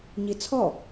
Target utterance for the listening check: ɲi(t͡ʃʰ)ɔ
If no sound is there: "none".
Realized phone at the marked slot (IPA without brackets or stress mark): t͡sʰ